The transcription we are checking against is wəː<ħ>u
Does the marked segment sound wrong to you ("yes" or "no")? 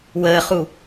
yes